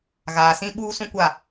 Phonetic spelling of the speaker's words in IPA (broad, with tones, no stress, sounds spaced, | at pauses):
ɣ aː˨ s ĩ˦ ɓ uː˦ s ũ˦ kʷ a˦˨